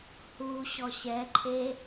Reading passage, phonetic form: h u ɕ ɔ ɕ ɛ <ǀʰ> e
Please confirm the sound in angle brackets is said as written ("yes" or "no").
no